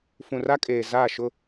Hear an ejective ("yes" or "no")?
yes